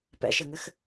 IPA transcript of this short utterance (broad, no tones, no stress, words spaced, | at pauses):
pɛ̰ʃɘŋɘx